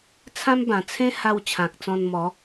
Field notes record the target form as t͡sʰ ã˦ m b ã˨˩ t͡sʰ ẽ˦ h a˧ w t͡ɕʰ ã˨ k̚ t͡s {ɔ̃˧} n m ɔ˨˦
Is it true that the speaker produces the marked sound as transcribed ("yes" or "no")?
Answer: yes